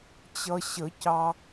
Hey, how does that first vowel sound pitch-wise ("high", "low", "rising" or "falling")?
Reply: low